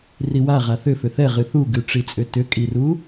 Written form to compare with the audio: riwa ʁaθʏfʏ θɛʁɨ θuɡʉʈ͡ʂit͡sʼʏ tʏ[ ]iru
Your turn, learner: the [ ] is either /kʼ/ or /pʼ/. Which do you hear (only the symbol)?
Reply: kʼ